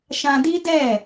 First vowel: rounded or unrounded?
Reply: unrounded